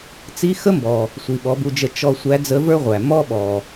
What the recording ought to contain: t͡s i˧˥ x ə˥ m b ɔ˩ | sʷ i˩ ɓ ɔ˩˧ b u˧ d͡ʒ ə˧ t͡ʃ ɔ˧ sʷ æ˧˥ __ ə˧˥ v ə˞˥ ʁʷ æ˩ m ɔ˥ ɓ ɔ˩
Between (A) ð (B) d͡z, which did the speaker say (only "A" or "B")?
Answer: B